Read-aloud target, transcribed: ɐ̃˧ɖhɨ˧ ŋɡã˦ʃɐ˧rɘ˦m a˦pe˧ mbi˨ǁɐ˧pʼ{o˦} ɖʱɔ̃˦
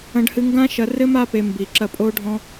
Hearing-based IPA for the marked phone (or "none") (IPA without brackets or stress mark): o˦